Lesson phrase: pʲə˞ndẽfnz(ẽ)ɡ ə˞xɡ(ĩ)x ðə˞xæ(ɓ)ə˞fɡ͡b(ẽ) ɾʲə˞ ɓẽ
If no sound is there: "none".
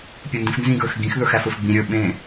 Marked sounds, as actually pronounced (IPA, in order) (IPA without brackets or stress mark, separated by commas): ĩ, ĩ, f, ĩ